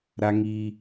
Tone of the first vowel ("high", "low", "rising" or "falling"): high